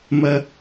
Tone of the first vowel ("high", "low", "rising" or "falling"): high